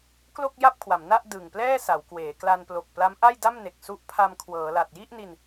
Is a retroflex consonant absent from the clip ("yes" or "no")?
yes